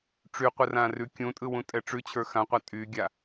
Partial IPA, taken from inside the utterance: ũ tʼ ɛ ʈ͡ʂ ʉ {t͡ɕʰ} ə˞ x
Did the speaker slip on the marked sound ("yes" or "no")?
no